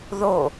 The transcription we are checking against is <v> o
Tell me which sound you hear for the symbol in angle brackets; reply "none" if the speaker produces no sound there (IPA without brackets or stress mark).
ð